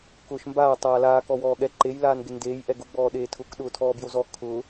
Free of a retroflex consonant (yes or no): yes